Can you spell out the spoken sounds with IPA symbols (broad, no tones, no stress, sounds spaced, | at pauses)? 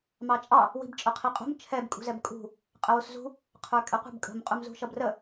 m ɑ t͡ʃʼ ɑ | w i̤ b t͡ʃʼ ʊ qʰ i qʼ ṳ m t͡ʃʰ ɛ b kʼ ṳ z ɛ b kʼ ṳ | qʼ ə w u s z ṳ | qʰ ə˞ kʼ ɛ qʷ ə̤ b kʼ ə̤ m qʼ u m z ṳ ʃ ʌ b r ə